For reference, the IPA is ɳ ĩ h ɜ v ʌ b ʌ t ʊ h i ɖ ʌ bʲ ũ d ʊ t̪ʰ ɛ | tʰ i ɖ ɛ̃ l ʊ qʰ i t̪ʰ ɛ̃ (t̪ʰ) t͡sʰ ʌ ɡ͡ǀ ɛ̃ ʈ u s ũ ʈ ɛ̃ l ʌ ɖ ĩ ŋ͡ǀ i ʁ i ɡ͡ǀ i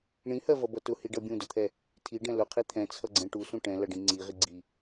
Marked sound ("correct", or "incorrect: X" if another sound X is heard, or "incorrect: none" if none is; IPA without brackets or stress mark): incorrect: none